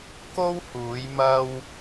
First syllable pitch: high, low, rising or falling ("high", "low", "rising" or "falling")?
high